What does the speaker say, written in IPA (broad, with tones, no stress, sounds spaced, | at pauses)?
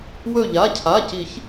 w ɵ˧˩ ʎ a˩˧˩ cʰ a˩˧˩ c i˨˩˦ ç